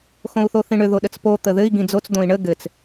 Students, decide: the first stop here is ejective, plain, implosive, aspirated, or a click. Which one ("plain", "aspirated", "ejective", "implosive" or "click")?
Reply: implosive